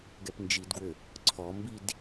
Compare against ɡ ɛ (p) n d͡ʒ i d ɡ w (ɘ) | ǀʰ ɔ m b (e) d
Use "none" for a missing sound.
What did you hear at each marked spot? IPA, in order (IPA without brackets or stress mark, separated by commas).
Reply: p, ɘ, i